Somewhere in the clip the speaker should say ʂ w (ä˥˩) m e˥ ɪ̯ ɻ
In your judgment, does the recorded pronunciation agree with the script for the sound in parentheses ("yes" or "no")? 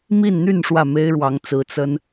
yes